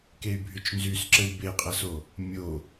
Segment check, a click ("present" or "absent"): present